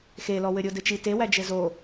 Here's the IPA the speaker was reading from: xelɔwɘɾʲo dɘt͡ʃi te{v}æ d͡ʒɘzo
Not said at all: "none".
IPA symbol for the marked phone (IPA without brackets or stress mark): w